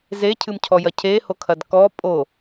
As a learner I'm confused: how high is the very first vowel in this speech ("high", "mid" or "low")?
mid